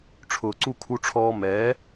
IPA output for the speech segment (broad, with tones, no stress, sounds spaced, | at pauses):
ʈ͡ʂʰ ʊː˨ ǀ u˦˨ kʰ u˧ ʈ͡ʂʰ ɔː˧ m ɛː˨˦